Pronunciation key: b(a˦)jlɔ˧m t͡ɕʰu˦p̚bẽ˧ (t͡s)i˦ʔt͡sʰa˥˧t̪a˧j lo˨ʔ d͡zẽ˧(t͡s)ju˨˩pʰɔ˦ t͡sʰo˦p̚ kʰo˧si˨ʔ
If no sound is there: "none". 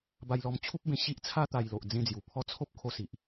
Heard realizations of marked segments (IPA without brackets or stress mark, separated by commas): a˧, ɕ, d͡z